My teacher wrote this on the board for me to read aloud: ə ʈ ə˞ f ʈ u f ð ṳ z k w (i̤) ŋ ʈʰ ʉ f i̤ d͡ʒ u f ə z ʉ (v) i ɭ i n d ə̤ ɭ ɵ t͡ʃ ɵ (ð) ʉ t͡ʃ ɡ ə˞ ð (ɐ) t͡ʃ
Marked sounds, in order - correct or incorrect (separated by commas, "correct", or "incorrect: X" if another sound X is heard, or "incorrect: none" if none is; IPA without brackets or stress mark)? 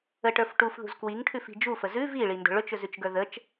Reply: incorrect: i, correct, incorrect: z, incorrect: ə